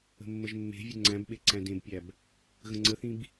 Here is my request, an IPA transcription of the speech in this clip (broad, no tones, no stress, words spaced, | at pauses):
ə̤mːəʒmːe̤vʲə ŋ͡ǀæ̃bɓe ǀæ̃dẽbpʲæb | ɣə̃ŋ͡ǀəθĩb